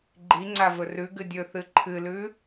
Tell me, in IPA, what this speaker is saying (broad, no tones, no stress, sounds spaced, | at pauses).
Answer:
ɡ͡ǃ i ŋ͡ǀ a v ɵ r ʉ ɡ ɨ dʲ ɵ θ ɨ ǃʰ ɨ l ʉ